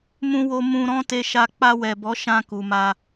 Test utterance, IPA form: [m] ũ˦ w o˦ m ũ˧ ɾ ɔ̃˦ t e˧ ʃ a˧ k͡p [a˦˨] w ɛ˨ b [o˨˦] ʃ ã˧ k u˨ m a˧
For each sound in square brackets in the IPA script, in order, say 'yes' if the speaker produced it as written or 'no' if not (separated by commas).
yes, no, no